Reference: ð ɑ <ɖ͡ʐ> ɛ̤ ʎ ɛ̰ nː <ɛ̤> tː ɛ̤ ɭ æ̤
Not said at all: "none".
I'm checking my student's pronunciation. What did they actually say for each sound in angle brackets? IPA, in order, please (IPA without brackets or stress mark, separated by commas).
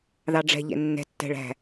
ɖ͡ʐ, ɛ̤